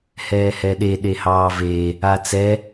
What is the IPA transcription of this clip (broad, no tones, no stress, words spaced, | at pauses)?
hɛːhɛɗe ɗehɑːve | at͡sɛ